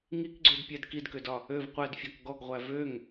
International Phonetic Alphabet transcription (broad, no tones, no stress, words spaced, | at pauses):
ŋikɡ͡ǀødpʲæd kidkødɒ | øv qʷædfʲɔk ɡɔɡʁʷæ vøŋ